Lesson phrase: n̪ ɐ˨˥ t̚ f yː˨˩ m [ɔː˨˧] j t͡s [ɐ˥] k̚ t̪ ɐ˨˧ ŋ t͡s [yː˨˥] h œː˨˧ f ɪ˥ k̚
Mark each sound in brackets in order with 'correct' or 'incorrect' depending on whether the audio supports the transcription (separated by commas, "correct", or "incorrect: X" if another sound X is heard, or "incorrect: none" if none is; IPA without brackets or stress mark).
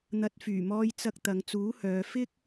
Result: incorrect: ɔː˧, incorrect: ɐ˧, incorrect: uː˨˥